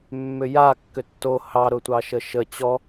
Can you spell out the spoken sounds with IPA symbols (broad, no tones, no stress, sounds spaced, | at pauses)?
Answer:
mː ʏ j a kː ʏ tː o h ɑ ɾ ʊ tʷ ɑ ʃ ə ʃ ə t͡ɕ ɔ